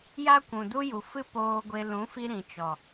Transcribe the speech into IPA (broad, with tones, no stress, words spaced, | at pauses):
ja˦kʷũ˨du˦ ju˨fɨ˦ poː˧ɡʷe˧ lũ˨˦fi˧ ɾĩ˨ t͡ʃɔ˨